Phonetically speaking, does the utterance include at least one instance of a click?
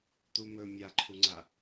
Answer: yes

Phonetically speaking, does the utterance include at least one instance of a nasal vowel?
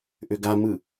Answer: no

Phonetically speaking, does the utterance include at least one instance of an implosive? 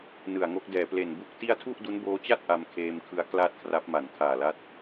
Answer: no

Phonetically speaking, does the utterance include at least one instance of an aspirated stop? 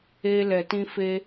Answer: no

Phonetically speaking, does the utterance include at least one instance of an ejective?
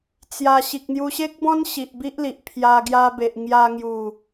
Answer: no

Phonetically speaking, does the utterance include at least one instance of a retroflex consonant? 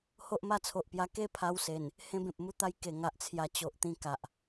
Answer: no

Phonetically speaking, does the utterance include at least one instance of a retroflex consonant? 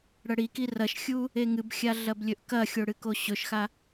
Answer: yes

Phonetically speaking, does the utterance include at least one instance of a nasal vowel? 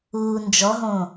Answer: yes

